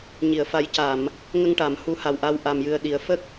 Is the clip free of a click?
yes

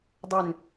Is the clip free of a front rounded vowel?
no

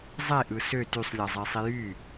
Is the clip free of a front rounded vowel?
no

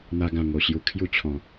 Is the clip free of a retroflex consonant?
yes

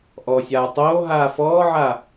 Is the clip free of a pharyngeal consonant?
no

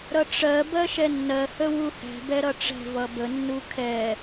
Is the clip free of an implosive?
yes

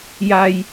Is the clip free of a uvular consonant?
yes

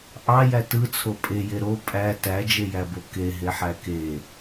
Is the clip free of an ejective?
no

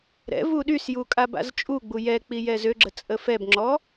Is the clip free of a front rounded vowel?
no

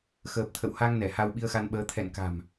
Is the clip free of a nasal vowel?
yes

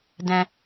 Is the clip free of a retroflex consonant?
yes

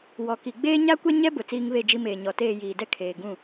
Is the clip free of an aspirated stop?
no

